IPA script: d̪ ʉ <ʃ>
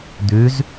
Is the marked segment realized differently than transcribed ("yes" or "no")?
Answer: yes